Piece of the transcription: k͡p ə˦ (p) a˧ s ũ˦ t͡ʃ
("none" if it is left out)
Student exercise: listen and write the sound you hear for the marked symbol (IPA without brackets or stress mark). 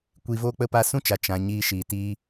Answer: p